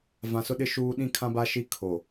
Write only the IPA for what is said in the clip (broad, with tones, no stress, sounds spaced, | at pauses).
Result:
v ã˨ s ʊ˦ ɗ ɪ˦ ʃ uː˦ ɗ ĩ˦ kʰ ã˦ b a˦ ʃ i˦ kʰ o˨